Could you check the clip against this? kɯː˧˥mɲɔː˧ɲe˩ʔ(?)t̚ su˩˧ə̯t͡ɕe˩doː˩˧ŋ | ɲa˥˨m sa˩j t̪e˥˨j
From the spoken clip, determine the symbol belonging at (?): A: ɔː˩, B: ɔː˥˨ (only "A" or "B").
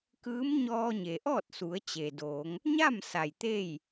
B